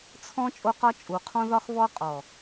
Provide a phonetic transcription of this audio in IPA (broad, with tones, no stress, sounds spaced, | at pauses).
t͡sʰ ɔ̃˦ t͡ʃʼ o˦ q ɒ˦ t͡ʃʼ u˨˦ qʰ ɔ̃˦ ð ɒ˦ x β ɔ˦ qʼ ɔ˨